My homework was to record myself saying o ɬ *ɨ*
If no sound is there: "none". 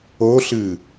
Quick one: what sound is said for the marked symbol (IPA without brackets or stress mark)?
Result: ɨ